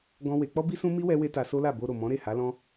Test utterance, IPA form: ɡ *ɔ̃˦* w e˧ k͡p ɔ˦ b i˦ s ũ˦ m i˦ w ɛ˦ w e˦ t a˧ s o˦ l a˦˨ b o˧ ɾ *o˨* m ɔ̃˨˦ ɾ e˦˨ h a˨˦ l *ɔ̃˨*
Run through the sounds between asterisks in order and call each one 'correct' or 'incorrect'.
correct, correct, incorrect

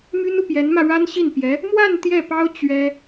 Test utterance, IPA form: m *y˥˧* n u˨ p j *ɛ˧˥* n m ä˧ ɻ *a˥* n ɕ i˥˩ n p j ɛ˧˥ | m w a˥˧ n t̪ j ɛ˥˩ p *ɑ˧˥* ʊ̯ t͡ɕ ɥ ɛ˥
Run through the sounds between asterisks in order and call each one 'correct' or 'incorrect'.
incorrect, correct, correct, incorrect

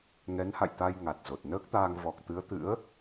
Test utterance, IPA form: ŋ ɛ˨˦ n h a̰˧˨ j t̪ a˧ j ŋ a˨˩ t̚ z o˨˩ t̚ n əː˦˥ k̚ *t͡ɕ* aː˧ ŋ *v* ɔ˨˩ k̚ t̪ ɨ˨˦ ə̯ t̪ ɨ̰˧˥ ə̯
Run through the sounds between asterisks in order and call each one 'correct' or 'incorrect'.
incorrect, correct

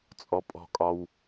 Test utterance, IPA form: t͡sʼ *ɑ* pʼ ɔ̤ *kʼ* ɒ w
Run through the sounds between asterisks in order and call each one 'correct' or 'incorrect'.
incorrect, correct

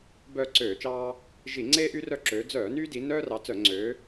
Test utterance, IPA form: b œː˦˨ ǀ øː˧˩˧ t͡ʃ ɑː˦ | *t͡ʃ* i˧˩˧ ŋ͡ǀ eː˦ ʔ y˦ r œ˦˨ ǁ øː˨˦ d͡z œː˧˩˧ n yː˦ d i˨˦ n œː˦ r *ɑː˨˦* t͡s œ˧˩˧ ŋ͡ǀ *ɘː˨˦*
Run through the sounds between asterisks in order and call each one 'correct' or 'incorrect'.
incorrect, incorrect, incorrect

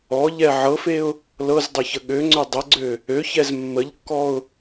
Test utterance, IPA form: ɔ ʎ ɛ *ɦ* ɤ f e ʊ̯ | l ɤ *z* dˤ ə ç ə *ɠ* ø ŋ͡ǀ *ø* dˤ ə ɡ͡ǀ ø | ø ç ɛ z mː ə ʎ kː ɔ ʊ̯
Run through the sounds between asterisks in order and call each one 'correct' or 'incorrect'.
incorrect, correct, correct, correct

